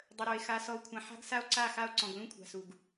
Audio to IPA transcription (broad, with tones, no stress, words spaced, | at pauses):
dˤə˨ɾo˨e̯ xa˨ sɔ˨o̯kʷʰã˨ ħa̤˦ɡsa˦o̯ ǀa˦˨xa˦o̯ ǀɔ̃˨ɡlũ˦kʷʰa̤˨su˨ɡ